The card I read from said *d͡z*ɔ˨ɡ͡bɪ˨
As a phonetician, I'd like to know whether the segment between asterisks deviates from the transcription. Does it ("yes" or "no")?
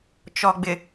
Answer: yes